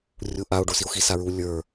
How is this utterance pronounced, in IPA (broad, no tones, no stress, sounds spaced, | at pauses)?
rʲ u ʔ a o̯ ɖ o s i o̯ x i s a ɹ u lʲ ə˞